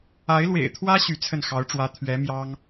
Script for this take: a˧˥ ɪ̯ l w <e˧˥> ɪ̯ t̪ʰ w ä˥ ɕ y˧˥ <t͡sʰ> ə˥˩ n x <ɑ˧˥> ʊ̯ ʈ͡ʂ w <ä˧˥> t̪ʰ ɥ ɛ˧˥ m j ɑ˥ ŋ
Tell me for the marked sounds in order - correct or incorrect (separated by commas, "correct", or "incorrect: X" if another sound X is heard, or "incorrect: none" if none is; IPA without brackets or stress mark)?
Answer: incorrect: ḛ˨˩, correct, correct, correct